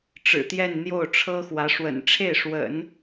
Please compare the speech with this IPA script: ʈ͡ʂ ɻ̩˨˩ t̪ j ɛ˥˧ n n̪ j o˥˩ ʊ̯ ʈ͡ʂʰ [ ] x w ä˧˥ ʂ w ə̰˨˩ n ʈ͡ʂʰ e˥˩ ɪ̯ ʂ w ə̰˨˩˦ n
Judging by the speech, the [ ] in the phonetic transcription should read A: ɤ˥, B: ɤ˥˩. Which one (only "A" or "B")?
A